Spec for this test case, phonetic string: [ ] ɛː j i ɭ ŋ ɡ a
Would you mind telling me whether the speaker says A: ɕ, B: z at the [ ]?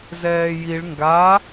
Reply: B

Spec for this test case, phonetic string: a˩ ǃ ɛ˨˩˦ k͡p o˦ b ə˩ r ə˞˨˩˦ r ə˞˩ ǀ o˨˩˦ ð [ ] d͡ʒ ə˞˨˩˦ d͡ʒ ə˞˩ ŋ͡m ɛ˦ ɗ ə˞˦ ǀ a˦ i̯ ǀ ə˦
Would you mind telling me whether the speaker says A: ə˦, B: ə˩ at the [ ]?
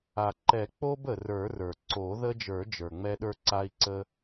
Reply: A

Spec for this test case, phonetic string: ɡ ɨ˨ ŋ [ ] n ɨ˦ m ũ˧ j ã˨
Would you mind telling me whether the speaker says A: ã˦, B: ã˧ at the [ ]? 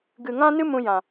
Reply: A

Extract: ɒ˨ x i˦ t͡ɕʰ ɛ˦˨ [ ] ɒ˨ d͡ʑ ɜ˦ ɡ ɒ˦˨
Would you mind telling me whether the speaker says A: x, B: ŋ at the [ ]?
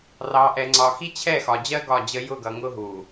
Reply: A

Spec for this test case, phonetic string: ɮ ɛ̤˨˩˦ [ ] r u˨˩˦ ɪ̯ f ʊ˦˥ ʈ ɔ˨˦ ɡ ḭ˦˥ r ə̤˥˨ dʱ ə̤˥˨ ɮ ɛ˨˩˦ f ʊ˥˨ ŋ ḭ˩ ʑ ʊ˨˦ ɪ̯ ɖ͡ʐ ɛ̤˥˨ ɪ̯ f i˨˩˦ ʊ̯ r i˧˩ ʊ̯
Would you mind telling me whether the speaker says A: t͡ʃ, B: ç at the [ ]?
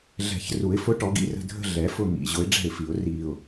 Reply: B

